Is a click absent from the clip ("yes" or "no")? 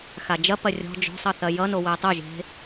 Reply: yes